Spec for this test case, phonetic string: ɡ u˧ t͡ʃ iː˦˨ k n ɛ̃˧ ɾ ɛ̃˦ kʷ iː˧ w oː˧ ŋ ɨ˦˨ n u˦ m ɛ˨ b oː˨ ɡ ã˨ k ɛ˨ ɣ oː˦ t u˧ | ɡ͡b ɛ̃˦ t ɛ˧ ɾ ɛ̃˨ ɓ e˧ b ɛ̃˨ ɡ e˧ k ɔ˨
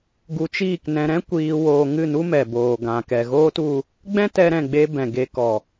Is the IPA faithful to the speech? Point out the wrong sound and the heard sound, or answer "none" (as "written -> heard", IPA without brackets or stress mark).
ɓ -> ɡ͡b